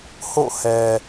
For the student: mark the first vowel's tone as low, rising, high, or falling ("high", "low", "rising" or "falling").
falling